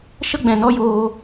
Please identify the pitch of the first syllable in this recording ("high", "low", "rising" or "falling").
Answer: high